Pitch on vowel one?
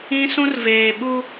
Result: high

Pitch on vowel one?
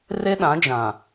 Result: high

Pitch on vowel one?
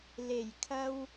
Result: low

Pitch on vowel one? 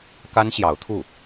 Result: high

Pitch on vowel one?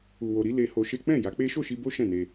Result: low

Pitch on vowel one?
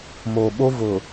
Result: low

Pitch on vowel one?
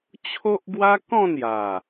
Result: high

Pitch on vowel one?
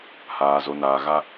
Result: low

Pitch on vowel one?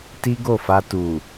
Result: high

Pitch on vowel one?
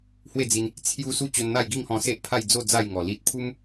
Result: falling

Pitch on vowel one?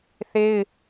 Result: high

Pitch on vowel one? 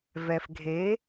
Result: low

